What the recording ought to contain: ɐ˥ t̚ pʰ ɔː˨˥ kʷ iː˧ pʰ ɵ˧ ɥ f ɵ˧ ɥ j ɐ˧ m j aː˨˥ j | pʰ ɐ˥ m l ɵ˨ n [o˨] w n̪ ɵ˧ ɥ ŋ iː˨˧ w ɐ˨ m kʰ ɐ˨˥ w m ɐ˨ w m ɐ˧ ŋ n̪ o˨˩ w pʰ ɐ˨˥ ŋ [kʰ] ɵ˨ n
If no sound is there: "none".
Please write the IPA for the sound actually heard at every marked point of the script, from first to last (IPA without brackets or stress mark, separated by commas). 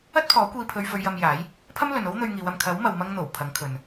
o˥, kʰ